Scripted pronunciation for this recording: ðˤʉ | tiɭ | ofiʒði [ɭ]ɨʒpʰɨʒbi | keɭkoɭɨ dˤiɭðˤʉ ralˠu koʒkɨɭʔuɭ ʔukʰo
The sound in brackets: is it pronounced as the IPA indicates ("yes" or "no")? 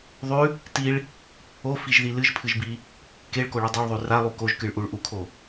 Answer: no